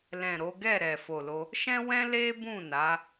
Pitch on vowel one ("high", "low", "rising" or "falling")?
low